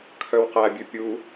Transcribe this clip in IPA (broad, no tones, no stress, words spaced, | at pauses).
kʰœwqæbʲʉ pʲu